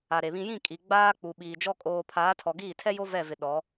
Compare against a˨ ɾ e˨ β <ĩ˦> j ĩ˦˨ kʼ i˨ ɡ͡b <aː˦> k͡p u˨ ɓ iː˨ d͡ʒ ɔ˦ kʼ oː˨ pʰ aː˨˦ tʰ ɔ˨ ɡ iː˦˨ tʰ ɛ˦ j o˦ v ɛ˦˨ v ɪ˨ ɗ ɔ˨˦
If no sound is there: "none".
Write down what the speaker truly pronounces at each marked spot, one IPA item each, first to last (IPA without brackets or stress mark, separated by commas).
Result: ĩ˦, aː˦